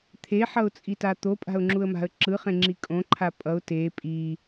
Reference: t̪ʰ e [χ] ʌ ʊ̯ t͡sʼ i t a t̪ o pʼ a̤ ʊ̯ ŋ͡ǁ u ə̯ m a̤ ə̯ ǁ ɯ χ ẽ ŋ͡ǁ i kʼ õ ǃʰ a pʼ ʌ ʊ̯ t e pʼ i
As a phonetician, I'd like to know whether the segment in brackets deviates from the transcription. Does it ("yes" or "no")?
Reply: yes